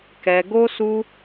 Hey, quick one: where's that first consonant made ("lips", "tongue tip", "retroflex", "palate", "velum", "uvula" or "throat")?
velum